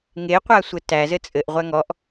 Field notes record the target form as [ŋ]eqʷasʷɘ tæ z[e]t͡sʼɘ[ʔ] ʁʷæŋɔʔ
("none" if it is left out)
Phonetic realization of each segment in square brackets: ŋ, ɘ, ʔ

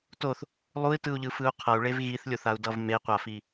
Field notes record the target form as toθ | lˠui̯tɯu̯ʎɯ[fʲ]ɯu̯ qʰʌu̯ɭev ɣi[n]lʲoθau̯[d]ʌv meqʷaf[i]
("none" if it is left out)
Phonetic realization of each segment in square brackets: f, θ, d, i

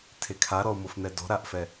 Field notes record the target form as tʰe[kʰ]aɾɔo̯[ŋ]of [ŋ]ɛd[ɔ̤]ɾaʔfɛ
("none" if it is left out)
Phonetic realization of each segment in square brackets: kʰ, m, n̪, ɔ̤

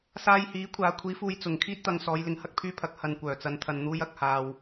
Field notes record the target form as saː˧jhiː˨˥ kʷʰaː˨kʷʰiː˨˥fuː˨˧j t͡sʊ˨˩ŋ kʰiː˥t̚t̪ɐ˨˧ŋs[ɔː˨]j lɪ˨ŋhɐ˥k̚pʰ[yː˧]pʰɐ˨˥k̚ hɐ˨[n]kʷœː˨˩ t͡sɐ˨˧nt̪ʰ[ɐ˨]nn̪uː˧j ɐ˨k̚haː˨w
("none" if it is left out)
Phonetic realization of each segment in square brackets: ɔː˨˧, yː˧, n, ɐ˨

